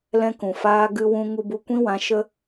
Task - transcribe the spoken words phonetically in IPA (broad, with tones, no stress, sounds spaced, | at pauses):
l ɛ̃˦ k ũ˨ f aː˦ ɡ ɨ˧ w ũ˧ ŋ u˧ b u˧ kʷ ĩ˦ w ã˨˦ ʃ ə˦